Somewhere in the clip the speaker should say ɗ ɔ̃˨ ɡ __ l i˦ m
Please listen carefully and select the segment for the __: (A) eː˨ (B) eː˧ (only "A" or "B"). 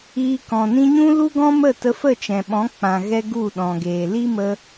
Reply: A